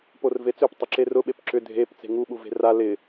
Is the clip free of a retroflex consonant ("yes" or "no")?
yes